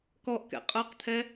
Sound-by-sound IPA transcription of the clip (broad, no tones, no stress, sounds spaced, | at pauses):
k ɔ ʔ k ɛ̰ qʼ ə˞ q t̪ʰ ɛ